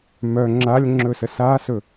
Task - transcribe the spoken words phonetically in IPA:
m œ ŋ͡ǁ a lʲ ŋ͡ǁ ɵ s ə s a s ɵ

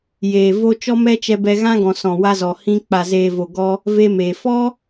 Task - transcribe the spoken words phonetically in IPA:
j eː˨ v o˧ t͡ʃ ɔ˦ m ɛ˦ t͡ʃ ɛ˧ b ɛ˧ ɣ ã˦ ɡ ɔ̃˨ s ɔ̃˨ w a˧ z ɔ˨ h ĩ˧ k͡p a˨ z eː˨ v o˨ ɡ ɔ˧ | v e˧ m eː˨ f ɔ˦

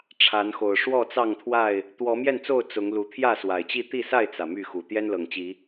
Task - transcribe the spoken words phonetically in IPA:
ʈ͡ʂʰ a˨˦ n x o˨˩ ʊ̯ ʂ w ɔ˥˨ t͡s ɑ˥˨ ŋ t̪ʰ w a˥˨ ɪ̯ | t̪ w ɔ˨˦ m j ɛ˥˨ n t͡s o˥˨ ʊ̯ t͡s ʊ˨˦ ŋ l u˨˦ t̪ʰ j ä˥˨ s w a˨˩ ɪ̯ t͡ɕ i˥˨ t̪ i˥˨ s a˥˨ ɪ̯ t͡s ä˩ m y˥˨ x u˨˩ t̪ j ɛ˦ n l ɤ˨˩ ŋ t͡ɕ i˨˦

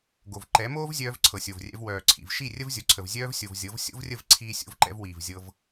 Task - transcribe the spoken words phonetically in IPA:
ɡ o˨ v ǃ ɛ˨˦ m oː˦ v zʲ œː˧ v ǀʰ ɤ˨ sʲ o˨ v rʲ ɛ̰˧ v w œː˨ ǀʰ ḭ˨ v ʃ i˦˨ rʲ ə˦ v zʲ o˨ ǀʰ ə˨ v zʲ œː˧ v sʲ o˨ v zʲ ɤ˨˦ v sʲ o̰˦ v rʲ ə˦˨ v ǀʰ iː˧ sʲ o̰˧ v ǃ ɛ̰˧ v w iː˨ v zʲ ɤ˧ v

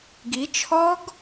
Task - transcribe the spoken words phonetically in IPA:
ɡ i t͡ʃʰ ɔ ɡ

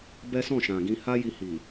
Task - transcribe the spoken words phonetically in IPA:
b ɛ˦ s ɔ̃˦˨ ʃ ã˨ ɡ ĩ˧ h a˦ j i˧ h i˨

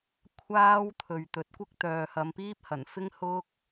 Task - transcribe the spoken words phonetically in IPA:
kʷʰ aː˥ w t̪ʰ ɵ˨ ɥ t̪ ɵ˨ t̚ kʷ ɪ˥ k̚ t̪ œː˨ h ɐ˨˧ m p iː˥ p̚ h ɐ˨˩ n f ɪ˥ ŋ h ʊ˥ k̚

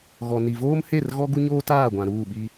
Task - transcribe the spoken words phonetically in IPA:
ɣ ɔ˨ n i˨ v oː˦ m h e˦˨ r ɣ ɔ˦ ɡ u˦ ɲ oː˦ t aː˦˨ ɡʷ ã˨ ɾ uː˦˨ ɓ i˦

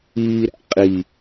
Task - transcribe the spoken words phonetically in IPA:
iː ɾ æ̰ qʼ i

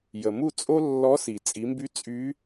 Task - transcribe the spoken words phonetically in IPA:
j ə˩ m u˥˨ t͡sʼ o˥ lː ɔ˧˥ s i˩ t͡sʼ i˩˧ m b y˧˥ t͡sʼ y˧˥

